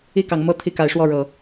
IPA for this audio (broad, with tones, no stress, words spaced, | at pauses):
i˥˨kɑ˨˦ŋ mɤ˥˨ t̪ʰi˥˨ka˨˦ɪ̯ʂwɔ˥˨ɻɤ˨˦